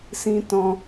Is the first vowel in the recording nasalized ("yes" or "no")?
yes